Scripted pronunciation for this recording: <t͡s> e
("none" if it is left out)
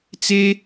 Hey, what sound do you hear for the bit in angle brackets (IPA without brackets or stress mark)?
t͡s